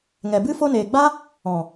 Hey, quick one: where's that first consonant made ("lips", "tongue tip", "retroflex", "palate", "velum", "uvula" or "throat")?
velum